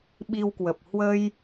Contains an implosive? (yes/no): yes